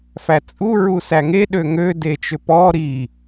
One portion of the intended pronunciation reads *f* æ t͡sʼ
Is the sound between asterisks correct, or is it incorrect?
correct